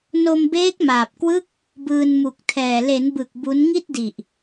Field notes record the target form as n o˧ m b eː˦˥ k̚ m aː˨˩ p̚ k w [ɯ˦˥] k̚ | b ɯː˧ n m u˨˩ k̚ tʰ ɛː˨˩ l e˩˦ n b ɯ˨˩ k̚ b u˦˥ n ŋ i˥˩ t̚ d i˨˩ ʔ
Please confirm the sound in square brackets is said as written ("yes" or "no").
yes